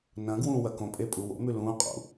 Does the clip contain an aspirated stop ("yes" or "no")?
no